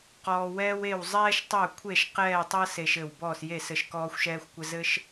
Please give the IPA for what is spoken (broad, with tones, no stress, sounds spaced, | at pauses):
q ɔː˦ w ɛː˦ w e˦˨ w zˤ ɛː˦ ʃ tˤ œ˦˨ kʷʰ e˦˨ ʃ q ɛː˦˨ tˤ ɤ˦ s e˦ ʃ ɘ˦˨ w b ɔː˦˨ s j e˦˨ s ɘ˦˨ ʃ k ɔː˦ xʷ ʃ ɛː˦ xʷ kʷ ɘ˦ z ɘ˦ ʃ